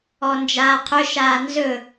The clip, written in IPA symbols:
ɔ n d͡ʒ aː qʰ ɵ ʃ aː n z ɵ

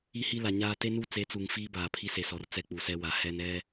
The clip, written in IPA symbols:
i˦ h i˦ l a˨ ɲ aː˦ t e˦ n u˦ t͡s e˨˦ t͡s u˨ ŋ f iː˦ b aː˨ pʰ i˦ s e˨ s ɔ˨ r t͡s ɛ˦ k͡p u˨ s ɛ˦ w a˨ h ɛ˦ n ɛ˦

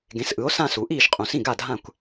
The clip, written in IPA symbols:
ɡ ẽ˩˥ s ʔ ɯ˩˥ o̯ s ã˥˩ s u˩˥ ʔ iː˥˩ ʃ qʼ ũ˩˧ s ĩ˥˩ ɡ a˥˩ dʱ ã˥˩ kʷ

